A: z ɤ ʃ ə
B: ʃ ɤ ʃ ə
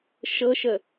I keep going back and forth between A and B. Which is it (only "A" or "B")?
B